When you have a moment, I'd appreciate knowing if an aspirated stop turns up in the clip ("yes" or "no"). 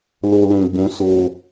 no